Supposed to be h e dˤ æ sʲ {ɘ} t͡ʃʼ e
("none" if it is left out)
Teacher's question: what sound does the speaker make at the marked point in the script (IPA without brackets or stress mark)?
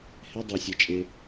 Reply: ɛ